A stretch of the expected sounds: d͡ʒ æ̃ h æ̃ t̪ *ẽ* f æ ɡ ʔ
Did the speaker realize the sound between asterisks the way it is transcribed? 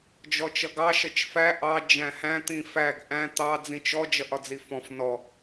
no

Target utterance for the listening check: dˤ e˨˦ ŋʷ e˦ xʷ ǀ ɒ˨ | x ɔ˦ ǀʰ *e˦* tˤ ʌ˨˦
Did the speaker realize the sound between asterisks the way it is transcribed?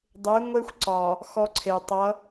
no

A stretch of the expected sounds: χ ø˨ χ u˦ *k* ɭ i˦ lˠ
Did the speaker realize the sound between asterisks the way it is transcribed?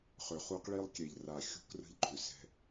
no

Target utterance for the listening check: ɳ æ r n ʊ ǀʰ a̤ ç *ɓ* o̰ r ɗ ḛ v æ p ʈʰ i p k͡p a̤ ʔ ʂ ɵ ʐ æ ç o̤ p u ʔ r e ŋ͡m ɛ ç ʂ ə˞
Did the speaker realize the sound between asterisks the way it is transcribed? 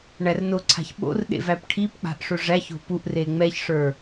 yes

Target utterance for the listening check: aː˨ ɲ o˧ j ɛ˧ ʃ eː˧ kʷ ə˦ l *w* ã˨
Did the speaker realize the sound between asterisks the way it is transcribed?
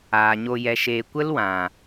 yes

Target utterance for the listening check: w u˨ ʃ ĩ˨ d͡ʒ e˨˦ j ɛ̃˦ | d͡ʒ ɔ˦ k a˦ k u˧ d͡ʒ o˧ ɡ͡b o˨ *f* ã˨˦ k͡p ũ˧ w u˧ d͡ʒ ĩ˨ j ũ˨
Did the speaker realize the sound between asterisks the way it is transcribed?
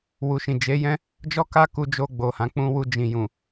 no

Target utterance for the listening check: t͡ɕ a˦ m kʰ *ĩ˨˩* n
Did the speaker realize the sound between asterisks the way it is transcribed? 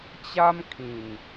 yes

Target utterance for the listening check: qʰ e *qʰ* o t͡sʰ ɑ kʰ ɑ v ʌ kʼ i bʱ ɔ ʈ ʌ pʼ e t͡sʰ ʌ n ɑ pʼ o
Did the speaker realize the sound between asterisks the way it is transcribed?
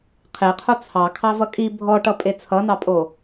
yes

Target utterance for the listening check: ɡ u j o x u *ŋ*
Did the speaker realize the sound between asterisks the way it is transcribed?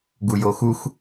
no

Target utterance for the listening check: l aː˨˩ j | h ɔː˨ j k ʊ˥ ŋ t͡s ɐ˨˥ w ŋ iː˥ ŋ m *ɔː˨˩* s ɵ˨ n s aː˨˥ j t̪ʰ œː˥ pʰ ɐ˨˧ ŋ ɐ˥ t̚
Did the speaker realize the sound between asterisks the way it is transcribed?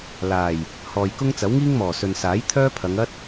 yes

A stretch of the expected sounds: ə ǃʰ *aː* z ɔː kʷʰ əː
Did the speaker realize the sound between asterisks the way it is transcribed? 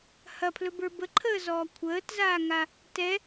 no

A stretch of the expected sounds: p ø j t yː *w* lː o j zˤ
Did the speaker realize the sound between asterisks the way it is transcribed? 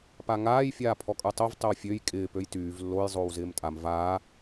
no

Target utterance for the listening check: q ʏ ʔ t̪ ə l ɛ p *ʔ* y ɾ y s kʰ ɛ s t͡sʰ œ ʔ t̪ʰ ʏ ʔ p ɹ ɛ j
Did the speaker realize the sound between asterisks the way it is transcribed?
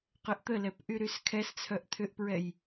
yes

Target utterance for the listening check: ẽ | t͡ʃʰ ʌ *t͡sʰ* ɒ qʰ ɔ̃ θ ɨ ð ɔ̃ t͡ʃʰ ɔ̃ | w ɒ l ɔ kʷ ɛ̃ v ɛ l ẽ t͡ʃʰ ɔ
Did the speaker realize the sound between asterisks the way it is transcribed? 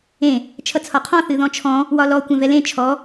yes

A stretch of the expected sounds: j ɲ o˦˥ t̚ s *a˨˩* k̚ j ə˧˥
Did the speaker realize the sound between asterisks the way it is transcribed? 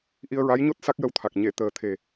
no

